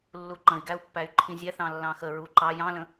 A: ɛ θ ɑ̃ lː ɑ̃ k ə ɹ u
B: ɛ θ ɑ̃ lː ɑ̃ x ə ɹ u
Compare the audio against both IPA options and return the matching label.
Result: B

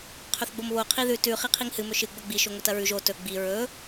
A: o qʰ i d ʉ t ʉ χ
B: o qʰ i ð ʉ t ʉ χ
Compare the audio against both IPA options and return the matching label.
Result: B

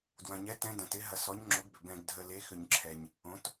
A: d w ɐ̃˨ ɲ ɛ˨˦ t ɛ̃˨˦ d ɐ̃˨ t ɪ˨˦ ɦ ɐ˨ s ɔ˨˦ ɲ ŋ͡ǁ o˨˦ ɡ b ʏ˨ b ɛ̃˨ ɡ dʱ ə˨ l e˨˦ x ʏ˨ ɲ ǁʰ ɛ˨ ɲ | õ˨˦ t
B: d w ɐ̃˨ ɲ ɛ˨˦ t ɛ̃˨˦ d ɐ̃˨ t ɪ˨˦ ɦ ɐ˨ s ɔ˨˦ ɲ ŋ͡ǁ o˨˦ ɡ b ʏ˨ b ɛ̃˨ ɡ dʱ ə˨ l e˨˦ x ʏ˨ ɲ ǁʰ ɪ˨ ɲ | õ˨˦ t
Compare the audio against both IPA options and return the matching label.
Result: A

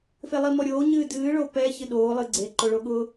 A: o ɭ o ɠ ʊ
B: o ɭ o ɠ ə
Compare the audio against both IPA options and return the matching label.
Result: A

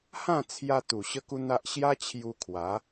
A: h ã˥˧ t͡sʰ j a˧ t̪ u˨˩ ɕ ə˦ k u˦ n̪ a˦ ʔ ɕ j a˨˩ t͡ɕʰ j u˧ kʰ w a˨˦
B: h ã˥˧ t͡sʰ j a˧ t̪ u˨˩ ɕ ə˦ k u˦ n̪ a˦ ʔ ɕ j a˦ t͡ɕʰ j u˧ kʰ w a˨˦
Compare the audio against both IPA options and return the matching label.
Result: B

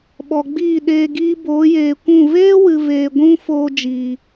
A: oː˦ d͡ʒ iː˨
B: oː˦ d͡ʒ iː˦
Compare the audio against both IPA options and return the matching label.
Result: A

